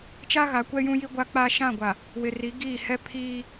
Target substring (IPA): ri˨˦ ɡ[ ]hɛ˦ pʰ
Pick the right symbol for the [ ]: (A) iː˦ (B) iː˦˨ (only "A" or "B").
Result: B